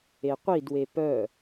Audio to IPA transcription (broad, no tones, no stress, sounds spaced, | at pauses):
e qʷ i d w e p œ